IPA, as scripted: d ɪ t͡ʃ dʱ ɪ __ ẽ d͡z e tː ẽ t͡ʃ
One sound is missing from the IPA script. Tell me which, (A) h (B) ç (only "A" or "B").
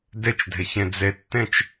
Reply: B